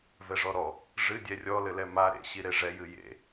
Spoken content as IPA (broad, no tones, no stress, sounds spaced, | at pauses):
v ɛ ʐ ɔ ɾ ɔ | ʐ ɨ dʲ ɛ rʲ ɔ l ɘ l ɛ m a ɾ ḛ ɕ i ɾ e ʐ ɛ j ɨ j ḛ